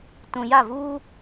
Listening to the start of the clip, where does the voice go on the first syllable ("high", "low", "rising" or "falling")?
high